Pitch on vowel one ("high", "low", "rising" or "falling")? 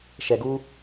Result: low